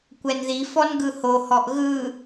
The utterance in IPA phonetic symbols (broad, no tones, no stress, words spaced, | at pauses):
kʷɛnði fɔnɡɯhohɔʔ ɣɯ